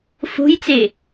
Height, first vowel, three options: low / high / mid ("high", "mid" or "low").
mid